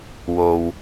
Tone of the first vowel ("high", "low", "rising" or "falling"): low